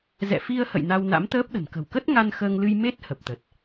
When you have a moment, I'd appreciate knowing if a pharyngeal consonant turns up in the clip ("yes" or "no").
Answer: no